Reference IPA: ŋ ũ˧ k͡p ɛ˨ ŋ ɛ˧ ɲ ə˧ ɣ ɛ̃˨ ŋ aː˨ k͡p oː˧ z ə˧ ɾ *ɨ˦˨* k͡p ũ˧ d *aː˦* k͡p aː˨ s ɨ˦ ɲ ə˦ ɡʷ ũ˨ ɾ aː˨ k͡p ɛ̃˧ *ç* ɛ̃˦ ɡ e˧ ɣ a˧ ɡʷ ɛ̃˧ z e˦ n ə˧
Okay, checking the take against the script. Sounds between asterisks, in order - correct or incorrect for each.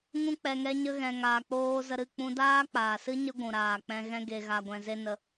correct, correct, incorrect

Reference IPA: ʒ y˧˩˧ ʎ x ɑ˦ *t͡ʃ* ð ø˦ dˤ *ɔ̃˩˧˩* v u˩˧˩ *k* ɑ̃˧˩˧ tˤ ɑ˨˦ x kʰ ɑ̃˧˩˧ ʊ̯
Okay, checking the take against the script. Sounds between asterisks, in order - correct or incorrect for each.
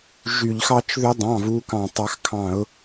correct, incorrect, correct

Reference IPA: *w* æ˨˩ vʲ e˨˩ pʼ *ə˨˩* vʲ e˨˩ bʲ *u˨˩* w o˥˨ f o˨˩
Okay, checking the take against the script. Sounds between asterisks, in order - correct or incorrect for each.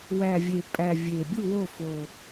correct, incorrect, incorrect

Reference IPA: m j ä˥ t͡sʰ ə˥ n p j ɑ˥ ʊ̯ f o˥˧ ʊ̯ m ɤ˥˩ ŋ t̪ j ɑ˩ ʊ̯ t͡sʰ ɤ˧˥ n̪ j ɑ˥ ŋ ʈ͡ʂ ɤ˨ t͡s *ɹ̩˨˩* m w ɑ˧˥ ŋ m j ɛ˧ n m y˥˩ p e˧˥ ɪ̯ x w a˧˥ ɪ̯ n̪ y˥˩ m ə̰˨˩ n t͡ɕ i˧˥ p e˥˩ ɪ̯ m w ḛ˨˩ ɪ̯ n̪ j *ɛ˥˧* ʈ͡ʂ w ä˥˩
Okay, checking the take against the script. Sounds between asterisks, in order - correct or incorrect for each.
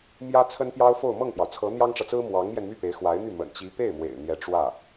incorrect, incorrect

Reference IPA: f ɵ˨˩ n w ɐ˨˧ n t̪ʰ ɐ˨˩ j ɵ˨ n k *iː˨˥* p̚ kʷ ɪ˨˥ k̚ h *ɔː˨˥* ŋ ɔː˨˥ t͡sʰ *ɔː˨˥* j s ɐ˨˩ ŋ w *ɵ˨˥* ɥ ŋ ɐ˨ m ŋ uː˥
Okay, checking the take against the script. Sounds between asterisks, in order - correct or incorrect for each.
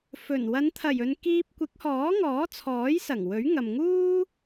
incorrect, correct, correct, correct

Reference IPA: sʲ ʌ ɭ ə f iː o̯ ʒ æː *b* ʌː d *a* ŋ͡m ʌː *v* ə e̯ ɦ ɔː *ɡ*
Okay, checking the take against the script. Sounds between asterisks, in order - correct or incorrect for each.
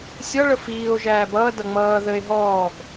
correct, incorrect, incorrect, correct

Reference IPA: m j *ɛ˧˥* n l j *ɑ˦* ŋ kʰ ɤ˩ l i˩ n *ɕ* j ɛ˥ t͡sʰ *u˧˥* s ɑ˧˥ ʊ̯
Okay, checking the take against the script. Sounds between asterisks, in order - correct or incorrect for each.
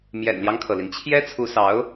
incorrect, correct, incorrect, correct

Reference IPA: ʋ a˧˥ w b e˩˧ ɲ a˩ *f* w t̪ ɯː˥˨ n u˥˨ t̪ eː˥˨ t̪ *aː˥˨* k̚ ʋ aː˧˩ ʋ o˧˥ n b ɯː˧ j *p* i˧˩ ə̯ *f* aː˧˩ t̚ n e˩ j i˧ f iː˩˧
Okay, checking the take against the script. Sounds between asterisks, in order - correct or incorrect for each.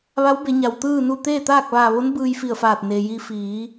incorrect, correct, incorrect, correct

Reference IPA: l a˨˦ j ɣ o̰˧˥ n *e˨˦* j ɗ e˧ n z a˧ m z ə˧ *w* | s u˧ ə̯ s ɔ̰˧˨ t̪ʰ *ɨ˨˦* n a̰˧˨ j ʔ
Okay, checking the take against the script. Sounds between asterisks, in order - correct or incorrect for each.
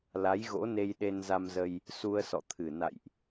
incorrect, incorrect, incorrect

